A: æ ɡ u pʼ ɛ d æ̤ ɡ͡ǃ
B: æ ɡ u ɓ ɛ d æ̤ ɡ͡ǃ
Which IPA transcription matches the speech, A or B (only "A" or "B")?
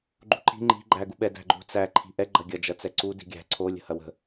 B